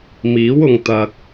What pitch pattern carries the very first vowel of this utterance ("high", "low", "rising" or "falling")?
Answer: rising